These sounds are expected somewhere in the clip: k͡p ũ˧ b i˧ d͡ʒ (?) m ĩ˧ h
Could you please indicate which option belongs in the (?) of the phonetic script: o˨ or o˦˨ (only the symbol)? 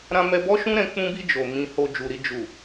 o˨